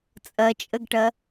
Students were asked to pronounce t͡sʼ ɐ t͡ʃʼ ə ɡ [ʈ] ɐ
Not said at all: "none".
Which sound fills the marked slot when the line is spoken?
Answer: ʈ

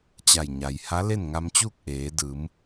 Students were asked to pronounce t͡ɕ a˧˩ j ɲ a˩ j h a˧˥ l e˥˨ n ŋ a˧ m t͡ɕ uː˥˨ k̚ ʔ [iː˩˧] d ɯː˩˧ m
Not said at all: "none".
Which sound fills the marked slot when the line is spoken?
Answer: eː˩˧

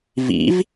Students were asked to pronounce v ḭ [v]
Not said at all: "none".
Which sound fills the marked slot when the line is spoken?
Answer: v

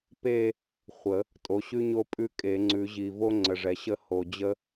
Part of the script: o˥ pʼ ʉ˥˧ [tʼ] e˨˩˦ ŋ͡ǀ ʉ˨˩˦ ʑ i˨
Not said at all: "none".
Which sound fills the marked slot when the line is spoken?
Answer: kʼ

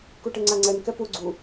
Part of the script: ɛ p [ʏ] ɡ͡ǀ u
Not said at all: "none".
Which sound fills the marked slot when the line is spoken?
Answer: u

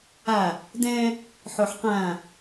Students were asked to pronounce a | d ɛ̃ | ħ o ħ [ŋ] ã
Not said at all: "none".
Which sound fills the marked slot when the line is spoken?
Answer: q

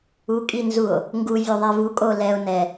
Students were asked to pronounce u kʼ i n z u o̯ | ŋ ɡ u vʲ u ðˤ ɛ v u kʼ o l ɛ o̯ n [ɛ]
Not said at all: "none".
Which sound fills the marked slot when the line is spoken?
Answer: ɛ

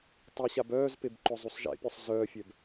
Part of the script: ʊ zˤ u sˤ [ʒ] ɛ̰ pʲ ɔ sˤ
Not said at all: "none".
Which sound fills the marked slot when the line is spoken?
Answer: ʒ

